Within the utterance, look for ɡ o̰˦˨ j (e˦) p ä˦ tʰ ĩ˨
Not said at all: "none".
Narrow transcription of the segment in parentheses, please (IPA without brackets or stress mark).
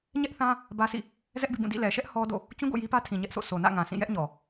i˦